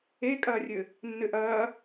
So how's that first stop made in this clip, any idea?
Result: ejective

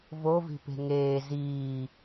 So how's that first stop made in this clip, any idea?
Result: plain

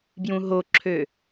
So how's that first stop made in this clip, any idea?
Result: plain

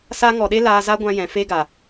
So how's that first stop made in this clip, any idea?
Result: implosive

